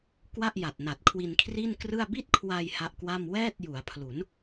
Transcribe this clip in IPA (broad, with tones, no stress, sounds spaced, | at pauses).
k w a˥˩ ʔ j a˨˩ t̚ n a˨˩ t̚ kʰ w i˧ n kʰ r i˥˩ n k r ɯ˥˩ a̯ b i˥˩ t̚ kʰ w a˧ j h a˦˥ ʔ k w a˥˩ m w ɛː˥˩ t̚ j u˩˦ a̯ pʰ l u˩˦ n